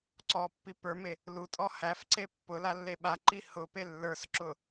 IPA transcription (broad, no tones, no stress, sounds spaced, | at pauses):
ǀ ɔ pː i p ə˞ m e | l u tʼ ɔ h æ f ǀ e pː ʊ l a lː e ɓ a ǃ i h ʊ p e lː ə˞ s ǁ ʊ